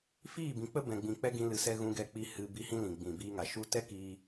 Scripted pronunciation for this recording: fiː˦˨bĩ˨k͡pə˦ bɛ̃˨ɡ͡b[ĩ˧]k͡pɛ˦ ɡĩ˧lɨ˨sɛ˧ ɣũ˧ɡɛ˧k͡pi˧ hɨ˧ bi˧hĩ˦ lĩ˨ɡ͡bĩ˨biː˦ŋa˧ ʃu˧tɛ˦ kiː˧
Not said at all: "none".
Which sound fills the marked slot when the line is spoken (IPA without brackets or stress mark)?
ĩ˨